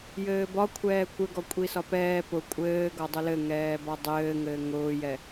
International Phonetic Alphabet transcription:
j ɘː b ɒ kʷʰ ɛː kʷ ɘ ɡ ɔ kʷʼ i s ɒ p ɛː p ʊ kʷʼ ɘː ɡ ɒ dˤ ʊ l ɘ ŋ ɛː b ɒ dˤ ɘː ŋ ɘː ŋ ʊː j ɛ

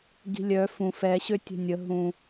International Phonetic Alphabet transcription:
ɡ i̤ lʲ œ f ũ f ɛ ɕ ø tʲ ɛ̤ nʲ ə ɦ ũ

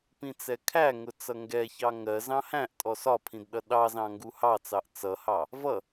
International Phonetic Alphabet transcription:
p ĩ t͡s ɛ kʰ æ ŋ ʊ t͡s ʌ ŋ ɡ ɛ ç ɑ ŋ ɜ z ɑ̃ h æ̃ ʔ tʼ ɔ s ɒ pʰ ĩ d ɗ ʌ ɗ ɑ z ɑ̃ ŋ ɡ u h ɑ t͡s ɑ ʔ t͡s ʌ h ɑ | v ʌ

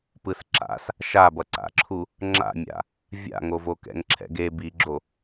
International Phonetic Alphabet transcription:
p ɯ s ǁ a̰ s | ʃ a b ʌ ǀ a̰ ǁʰ u | ŋ͡ǁ a̰ mʲ a̰ | vʲ a̰ ŋ o v o k ɛ̰ ŋ ǁʰ ɛ̰ ɡ e b i ɡ͡ǁ o

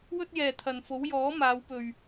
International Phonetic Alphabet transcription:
w ɵ˥ t̚ j ɛː˨ t̪ʰ ɐ˨ n f o˨˥ w j ɔː˨˥ m aː˨˧ w p ɵ˨ ɥ

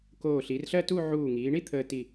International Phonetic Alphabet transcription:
k oː˧˩ ɬ i˩˧ r ɬ ɜ˥˧ t u˥˧ ʕ uː˧˩ ŋ iː˩˧ ɳ i˥ t̪ʰ əː˧ t i˧˩

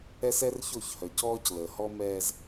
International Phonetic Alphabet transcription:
ɛ˦ s ɛ˦ r ç o˦˨ ç h œ˨ c ɔː˦ c l əː˨ h ɔ˦ m ɛː˦ z

